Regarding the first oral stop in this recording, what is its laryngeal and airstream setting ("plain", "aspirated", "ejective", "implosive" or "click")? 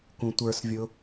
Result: plain